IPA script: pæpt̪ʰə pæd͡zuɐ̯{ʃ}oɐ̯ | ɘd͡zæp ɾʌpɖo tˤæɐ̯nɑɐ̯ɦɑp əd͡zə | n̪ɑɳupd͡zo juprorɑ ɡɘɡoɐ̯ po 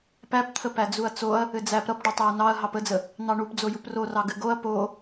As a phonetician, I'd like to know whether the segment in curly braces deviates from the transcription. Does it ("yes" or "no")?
yes